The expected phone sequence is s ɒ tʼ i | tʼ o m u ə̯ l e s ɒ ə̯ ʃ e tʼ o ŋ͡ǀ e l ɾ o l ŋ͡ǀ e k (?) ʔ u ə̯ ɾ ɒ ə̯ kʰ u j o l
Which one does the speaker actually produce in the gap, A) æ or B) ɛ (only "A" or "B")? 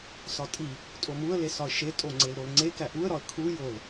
A